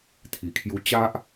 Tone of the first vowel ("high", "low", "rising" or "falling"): low